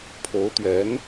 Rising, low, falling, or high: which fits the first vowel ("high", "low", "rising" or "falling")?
rising